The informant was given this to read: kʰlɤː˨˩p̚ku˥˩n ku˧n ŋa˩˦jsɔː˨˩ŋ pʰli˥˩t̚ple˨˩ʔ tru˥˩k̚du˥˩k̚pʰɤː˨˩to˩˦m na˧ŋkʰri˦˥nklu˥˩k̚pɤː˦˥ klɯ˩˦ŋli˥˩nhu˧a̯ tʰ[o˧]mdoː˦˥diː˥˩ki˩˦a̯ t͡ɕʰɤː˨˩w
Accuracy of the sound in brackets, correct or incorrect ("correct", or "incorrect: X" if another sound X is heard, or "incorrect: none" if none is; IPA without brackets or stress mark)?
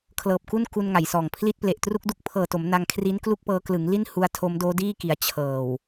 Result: incorrect: o˦˥